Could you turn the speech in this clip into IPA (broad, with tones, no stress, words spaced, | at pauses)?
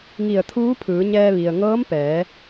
ŋi˧˩ə̯t̪ʰuː˧˥pʰɯː˩˧ɲɛː˧ ʋi˩ə̯ŋɤː˧˥mpɛː˩˧